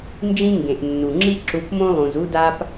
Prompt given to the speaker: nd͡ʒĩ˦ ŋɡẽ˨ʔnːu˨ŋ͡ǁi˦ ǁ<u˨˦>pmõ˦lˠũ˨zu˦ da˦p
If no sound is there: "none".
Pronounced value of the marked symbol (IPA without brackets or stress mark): u˨˦